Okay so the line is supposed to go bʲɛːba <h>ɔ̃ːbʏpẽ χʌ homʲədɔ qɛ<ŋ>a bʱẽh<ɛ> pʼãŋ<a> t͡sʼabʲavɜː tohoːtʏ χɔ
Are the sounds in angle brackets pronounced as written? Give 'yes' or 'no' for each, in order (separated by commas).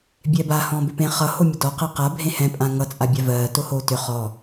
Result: yes, no, no, no